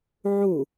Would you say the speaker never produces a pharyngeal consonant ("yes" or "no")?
no